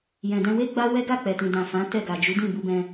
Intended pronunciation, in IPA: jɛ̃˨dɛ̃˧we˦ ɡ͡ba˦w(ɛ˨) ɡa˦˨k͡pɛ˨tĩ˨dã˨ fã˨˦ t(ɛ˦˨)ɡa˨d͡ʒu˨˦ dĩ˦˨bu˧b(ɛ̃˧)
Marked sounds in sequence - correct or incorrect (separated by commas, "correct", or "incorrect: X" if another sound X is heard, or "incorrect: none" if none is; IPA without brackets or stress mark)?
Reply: incorrect: ɛ˦, correct, correct